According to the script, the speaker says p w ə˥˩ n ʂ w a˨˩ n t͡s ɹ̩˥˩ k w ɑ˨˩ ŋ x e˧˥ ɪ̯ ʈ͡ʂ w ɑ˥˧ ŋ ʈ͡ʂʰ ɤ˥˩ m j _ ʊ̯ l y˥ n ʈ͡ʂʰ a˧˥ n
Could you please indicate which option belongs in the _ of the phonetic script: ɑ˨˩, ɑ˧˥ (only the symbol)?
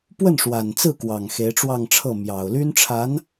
ɑ˨˩